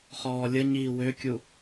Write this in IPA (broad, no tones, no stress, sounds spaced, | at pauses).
χ ɔː lʲ ə ɲ iː w ø kʲ u